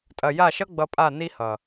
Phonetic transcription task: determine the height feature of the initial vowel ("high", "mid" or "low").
low